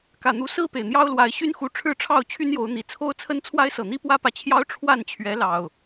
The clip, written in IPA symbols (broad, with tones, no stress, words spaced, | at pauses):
kä˨˩n̪u˨˦ sɹ̩˥˨pe˩ɪ̯ n̪jɑ˦ʊ̯lwa˨˦ɪ̯ ɕy˦nxu˨˦ ʈ͡ʂʰɻ̩˥˨ʈ͡ʂʰɑ˥˨ʊ̯ t͡ɕʰy˦njo˨˦ʊ̯n̪i˨˩ t͡sʰo˦ʊ̯t͡sʰə˦n t͡sʰwa˦ɪ̯sɤ˨˩ n̪i˦pwä˦pä˨t͡ɕʰjɑ˦ʊ̯ ʈ͡ʂʰwa˥˨nt͡ɕʰɥɛ˨˦lɑ˨˩ʊ̯